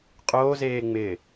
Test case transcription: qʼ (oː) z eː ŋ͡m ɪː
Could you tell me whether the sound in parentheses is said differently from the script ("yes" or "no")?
no